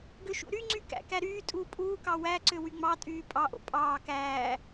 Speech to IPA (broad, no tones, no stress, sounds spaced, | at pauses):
ɡ ø ʃ ṵ ɾ y ŋ͡ǀ y k æ̰ k æ ɾ yː tʼ uː pʼ uː k ɑ w æ ǀ ø w y ŋ͡m ɑ tʼ yː pʼ ɑ ʔ o̰ pʼ ɑː k æː